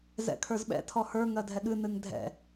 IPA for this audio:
z ɛ̰ kʰ ə˞ z ɓ ɛ̰ tʰ ɔ h ə˞ ŋ ɜ dʱ ɛ ɠ ɨ n ɨ ŋ dʱ ɛ̰

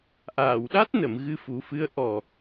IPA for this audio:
ʔ aː˨˩˨ w ɗ a˦˥ t̚ n ə˨˩˨ m ɣ ɨ˧ f u˨˩˦ f ɨ˧˥ ə̯ ʔ ɔ˨˩

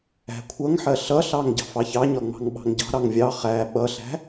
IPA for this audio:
æ̤ kʷʰ ʌ ŋ ħ ɜ ɬ ʌ ɬ ɑ ŋ ɟ ɑ̤ f ɑ ç ɑ ɲ ɒ ŋ͡m ɑ̤ ŋ ɓ ɑ̤ ŋ ɟ ɑ̤ ɾ ɑ ŋ vʲ ɑ χ æ ɓ ʌ ɬ æ̤

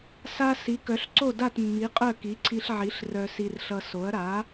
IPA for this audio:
s a˧ s i˩˥ k œ˩˥ ɬ ǀ o˥˩ d a˥˩ t mː i˩˥ qʼ œ˥˩ k i˩˥ ǀʰ i˧ ɬ ʕ i˩˥ ɬ r œ˧ s i˧ r ɬ ʌ˧ s o˩˥ ɐ̯ ɾ a˩˥

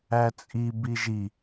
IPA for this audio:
æ t͡sʼ i b i ʒ i

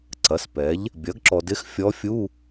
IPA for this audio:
ǀ ɐ˩˥ s p ɛː˩˥ ʎ | bʲ ɐ˩˥ ɡ ǁ ɔ˨ d ɪ˧˥ x fʲ ɔ˧˥ fʲ uː˧˥˧

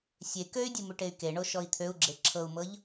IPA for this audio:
sʲ e k ø y̯ dʲ ɨ m ʉ ʈ e y̯ k e ɳ o ʃ ɔ i̯ t̪ʰ ø u̯ ɡ͡ǁ e ǁʰ ɤ u̯ m ɤ ʎ

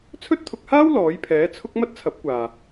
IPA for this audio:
t͡sʰ ɵ˥ t̚ t̪ʰ ʊ˧ k̚ h aː˥ w l ɔː˨˥ j pʰ ɛː˨˥ t͡sʰ ʊ˥ k̚ m ɐ˥ t̚ t͡sʰ ɐ˨˥ p̚ kʷ aː˨

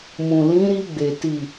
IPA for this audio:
m ũ˨ l ĩ˨˦ ɾ i˧ ɡ͡b e˨ t i˨

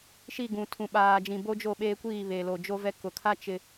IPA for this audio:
ʃ i˦˨ ɡ ũ˨ tʰ ũ˨ ɓ aː˨ d͡ʒ ĩ˨ b o˦ d͡ʒ o˦˨ ɓ eː˦ kʷ iː˦˨ β eː˨ l o˨ d͡ʒ o˦ v ɛ˦ k ʊ˨ kʰ a˦ t͡ʃ ɪ˨

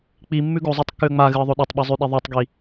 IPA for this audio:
k͡p i mː ʉ ɡ o zˤ a tˤ kː ʉ ə̯ ŋ͡m a ɣ ɨ ə̯ ðˤ o ɗ ɐ tˤ ɓ ɨ zˤ ʉ ɗ i ðˤ u tˤ ɡ i

